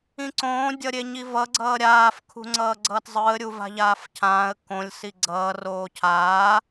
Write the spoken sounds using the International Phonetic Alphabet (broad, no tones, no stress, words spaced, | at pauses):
ĩǀõː dʲʌɾʲeɲivʌ ɡ͡ǀʌːɾʲaːf kʰṳŋ͡ǀʌːɡ͡ǀʌːtzˤɯə̯ ɾʲuva̤ʎaːfcʰãːə̯ kõlʲ siɡ͡ǀʌː roːcʰaː